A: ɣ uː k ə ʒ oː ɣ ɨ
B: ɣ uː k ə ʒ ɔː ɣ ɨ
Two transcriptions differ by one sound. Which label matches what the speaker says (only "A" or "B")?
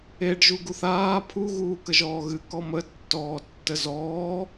B